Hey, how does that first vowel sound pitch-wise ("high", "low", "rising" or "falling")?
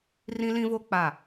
high